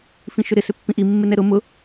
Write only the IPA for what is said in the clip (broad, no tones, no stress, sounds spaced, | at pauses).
f ĩ ʃ ʏ ɾ ɪ s ʏ pː ĩ ʔ i mː ɪ n ɛ ɾ ʊ m ʊ